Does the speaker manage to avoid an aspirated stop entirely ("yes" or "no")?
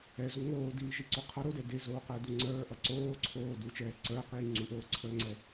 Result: no